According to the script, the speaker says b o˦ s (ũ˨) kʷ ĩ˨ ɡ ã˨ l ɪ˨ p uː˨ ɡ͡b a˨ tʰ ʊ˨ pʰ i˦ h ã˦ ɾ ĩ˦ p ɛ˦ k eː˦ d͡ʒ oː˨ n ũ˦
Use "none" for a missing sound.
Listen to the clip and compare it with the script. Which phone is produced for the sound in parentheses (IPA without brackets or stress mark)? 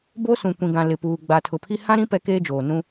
ũ˨